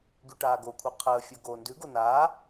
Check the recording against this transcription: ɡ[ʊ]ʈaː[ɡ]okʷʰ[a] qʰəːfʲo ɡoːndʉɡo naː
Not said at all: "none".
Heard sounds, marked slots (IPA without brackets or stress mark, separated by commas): ʉ, ɡ, a